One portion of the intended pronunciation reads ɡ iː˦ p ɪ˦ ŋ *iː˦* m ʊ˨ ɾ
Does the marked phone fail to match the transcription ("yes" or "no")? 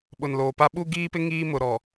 no